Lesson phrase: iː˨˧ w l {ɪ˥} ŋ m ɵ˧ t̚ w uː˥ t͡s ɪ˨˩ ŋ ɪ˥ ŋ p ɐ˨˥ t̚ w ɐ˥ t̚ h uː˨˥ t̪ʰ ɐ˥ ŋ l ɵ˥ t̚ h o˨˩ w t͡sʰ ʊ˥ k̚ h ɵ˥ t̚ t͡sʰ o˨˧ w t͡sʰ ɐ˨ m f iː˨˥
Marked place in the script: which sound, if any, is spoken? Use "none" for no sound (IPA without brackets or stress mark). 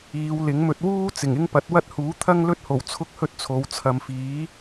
ɪ˨˥